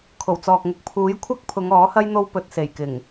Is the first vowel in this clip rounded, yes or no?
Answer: yes